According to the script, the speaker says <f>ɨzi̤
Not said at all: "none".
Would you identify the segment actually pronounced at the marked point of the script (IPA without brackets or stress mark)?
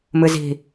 m